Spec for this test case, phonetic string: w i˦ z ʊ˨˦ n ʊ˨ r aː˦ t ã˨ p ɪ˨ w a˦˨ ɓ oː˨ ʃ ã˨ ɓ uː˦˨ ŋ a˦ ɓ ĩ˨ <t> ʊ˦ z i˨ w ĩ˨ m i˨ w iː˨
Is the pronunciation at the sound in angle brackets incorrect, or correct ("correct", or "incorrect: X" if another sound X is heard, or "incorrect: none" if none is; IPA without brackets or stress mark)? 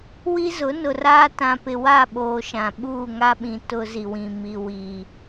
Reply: correct